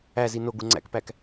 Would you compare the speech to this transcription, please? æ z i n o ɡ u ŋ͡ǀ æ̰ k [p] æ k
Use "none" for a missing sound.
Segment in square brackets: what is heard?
p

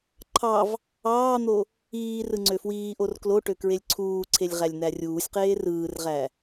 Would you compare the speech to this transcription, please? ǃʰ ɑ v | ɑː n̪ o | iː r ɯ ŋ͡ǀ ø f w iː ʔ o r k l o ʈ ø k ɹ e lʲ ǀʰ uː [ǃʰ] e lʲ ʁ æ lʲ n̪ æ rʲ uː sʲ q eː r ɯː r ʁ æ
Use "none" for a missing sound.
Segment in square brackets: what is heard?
ǀʰ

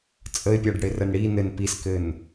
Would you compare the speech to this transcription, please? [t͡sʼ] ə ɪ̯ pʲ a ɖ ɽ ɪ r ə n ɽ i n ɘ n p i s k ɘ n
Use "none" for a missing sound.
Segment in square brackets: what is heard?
t͡sʼ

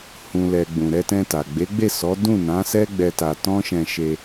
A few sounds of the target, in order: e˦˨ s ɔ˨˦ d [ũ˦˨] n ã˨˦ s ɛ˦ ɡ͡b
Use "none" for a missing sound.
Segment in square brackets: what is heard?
ũ˦˨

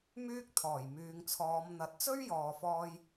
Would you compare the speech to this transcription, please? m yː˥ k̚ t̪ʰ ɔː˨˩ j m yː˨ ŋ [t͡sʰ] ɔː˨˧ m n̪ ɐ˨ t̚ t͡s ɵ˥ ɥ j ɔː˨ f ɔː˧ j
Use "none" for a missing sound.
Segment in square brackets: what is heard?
t͡sʰ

